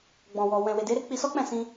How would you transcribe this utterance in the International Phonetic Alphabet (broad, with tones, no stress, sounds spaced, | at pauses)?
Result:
ɡ͡b ɔ̃˨ w ɔ˨ w ɛ̃˨ w e˨ d e˨˦ ɾ e˦ k͡p i˧ s ɔ˦ k͡p ɛ̃˦˨ s ĩ˧